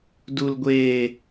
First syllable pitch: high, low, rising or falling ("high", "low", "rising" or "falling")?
low